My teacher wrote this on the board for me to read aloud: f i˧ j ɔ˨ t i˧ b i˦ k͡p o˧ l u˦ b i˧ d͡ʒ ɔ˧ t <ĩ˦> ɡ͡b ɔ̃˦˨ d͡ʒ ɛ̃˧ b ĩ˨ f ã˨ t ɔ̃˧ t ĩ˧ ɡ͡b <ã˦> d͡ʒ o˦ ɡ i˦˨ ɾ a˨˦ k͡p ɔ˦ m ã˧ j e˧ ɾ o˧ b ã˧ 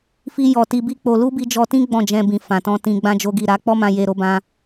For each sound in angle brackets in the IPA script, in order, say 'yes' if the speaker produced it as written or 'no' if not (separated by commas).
yes, yes